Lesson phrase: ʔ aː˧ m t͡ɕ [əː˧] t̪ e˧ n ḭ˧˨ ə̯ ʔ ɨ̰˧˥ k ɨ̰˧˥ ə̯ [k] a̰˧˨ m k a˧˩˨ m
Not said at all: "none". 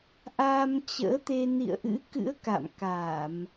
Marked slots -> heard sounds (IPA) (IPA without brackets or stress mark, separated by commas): ə̰ː˧˥, k